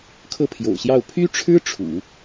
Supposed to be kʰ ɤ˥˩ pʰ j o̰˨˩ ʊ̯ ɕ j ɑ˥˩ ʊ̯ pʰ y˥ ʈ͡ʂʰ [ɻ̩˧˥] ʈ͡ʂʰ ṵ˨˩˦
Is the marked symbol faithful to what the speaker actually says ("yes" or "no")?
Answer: no